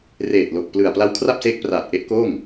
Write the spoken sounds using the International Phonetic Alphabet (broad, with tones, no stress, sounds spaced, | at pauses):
r eː˨˩ t̚ l o˨˩ k̚ p l ɯ˨˩ a̯ p l a˦˥ w kʰ r a˥˩ p̚ s eː˦˥ k̚ p r aː˨˩ t̚ ʔ e˦˥ ʔ k oː˥˩ ŋ